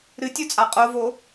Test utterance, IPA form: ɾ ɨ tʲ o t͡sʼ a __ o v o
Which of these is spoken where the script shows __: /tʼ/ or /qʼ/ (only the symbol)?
qʼ